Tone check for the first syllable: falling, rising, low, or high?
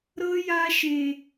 high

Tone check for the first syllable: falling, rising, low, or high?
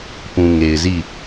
low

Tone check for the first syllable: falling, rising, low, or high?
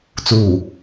low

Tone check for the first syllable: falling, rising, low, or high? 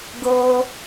low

